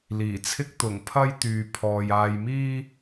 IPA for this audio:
l iː˨˩ t͡sʰ ɪ˥ k̚ t̪ ʊ˨˩ ŋ pʰ ɐ˥ j t̪ yː˨ pʰ ɔː˨ j aː˧ j m iː˥

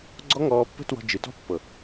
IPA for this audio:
ɡ͡ǀ ɔ˦ ŋ ɔː˧ pː ə̤˦ t w ɔ̤˧ d͡ʒ ɨ˨ t ɔ̤˦ pː ɤ˨

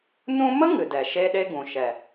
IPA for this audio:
n ũ˦ m ə˦ ŋ ɨ˨ d ɛ˨ ʃ e˦ ɗ e˦ ɡ ũ˨ ʃ ɛ˨

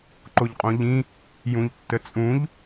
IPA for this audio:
ǃ o ʎ qʼ õ ʎ ĩ | j ũ ʎ tː ə t͡sʼ ũ ʎ

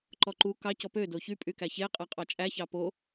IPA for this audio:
ǃ ɔ ǃ u k ɑ c ɔ p ø d o ç y pʼ y k æ ç e qʼ æ qʼ ɑ t͡ʃʼ æ ç ɑ p o

